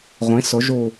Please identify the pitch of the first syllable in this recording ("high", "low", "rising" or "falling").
rising